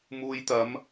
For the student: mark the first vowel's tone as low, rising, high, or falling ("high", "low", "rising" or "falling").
low